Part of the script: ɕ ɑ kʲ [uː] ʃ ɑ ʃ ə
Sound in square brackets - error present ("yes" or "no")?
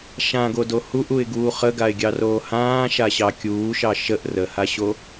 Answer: no